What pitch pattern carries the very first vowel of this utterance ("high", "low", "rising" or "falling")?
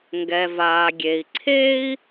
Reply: low